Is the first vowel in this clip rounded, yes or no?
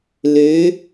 yes